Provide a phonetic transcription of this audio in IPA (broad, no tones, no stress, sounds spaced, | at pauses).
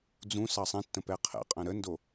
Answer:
d͡z ũ s ɑ sˤ ɛ̃ tː ə̃ p ɛ qʰ ɛ̰ qʼ ɐ̃ ɾ ə n d o